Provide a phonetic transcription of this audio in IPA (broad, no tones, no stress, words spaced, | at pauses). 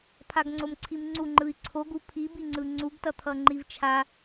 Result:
pʰaɡŋ͡ǀomǀʰimŋ͡ǀu ŋ͡ǃɯi̯ǀʰoɡ upʰibiŋ͡ǀɯ ŋ͡ǀuɡtʌt̪ʰʌ ŋ͡ǃivt͡ʃʰa